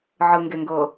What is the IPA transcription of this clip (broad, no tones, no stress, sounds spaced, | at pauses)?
ʕ ɯ ŋ ɡ e ŋ ɡ ɤ